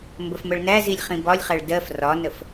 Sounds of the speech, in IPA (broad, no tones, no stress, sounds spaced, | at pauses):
m b ə f m ə ɭ n æ z i lʲ χ ĩ b ɒ lʲ χ æ ɭ d ɜ f r ɒ n ə f